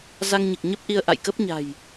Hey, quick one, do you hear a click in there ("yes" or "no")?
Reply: no